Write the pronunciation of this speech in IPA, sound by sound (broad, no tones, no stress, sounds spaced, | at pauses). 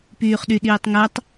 p yː χ ɗ y ɗ iː tˤ ŋ ɜ tˤ